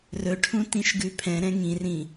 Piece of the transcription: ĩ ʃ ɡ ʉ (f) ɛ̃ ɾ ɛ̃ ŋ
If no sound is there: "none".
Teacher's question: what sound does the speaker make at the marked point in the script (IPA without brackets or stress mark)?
pʰ